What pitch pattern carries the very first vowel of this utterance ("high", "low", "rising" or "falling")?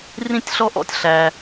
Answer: high